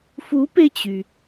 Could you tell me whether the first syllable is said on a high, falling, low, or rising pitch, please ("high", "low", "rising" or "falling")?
rising